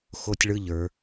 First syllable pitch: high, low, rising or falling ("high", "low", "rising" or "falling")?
high